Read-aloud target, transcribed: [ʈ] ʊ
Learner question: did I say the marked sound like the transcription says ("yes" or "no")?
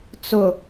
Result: no